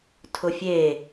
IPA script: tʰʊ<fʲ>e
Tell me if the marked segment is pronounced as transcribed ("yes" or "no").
yes